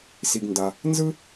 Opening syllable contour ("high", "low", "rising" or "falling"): low